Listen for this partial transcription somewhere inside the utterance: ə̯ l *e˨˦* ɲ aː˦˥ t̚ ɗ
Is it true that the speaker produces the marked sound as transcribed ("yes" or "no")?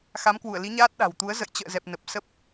no